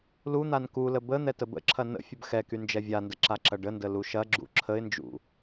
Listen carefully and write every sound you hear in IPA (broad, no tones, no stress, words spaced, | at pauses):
lu n̪ankulə bə n̪ɛtəbə̰ǁʰɐ nə̰ fʲəbxɛky nd͡ʒɛvʲandə ǁaǁɐɖəndə luʃɐɡ͡ǁṵ ǁʰəɪ̯nd͡ʒṵ